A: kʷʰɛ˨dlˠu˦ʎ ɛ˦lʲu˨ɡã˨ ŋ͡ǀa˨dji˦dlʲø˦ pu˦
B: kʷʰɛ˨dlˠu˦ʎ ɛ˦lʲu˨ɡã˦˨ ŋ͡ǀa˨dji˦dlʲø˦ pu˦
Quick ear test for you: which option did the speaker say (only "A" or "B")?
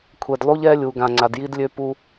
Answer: A